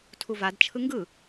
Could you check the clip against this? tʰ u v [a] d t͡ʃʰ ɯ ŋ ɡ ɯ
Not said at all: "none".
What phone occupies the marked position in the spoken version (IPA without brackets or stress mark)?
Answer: a